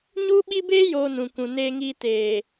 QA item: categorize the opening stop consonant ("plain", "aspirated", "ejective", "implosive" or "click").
implosive